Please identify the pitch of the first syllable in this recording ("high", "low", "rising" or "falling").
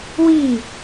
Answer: falling